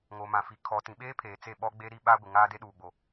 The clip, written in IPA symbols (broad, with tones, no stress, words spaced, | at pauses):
ŋo˨mã˨fi˨ kʰɔ˨ tĩ˨ɓeː˦pʰeː˨ t͡se˦˨ɓɔ˦ɡ͡be˦ ɾi˦ɓa˦ ɡʷɪ˨ ŋaː˦de˦ɗuː˨ɡ͡bo˨